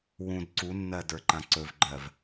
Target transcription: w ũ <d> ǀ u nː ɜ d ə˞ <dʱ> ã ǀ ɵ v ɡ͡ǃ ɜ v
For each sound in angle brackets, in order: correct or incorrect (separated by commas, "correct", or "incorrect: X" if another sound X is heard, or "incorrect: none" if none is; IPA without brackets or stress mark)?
correct, incorrect: ǃ